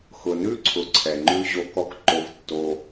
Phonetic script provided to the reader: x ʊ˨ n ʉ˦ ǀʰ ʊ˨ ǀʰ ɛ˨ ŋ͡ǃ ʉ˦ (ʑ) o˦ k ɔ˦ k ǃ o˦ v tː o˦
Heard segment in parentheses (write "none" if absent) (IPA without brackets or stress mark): ʑ